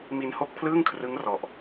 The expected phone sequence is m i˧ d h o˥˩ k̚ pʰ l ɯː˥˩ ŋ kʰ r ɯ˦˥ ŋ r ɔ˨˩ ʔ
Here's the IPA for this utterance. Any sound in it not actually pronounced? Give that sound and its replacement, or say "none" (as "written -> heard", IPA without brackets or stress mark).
d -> n